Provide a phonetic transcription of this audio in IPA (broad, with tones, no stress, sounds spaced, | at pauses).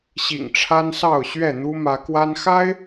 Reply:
ɕ ḭ˨˩ ŋ ʈ͡ʂʰ a˦ n s ɑ˥˨ ʊ̯ ɕ ɥ ɛ˥˨ n̪ u˦ m ä˨˦ k w a˦ n x a˦ ɪ̯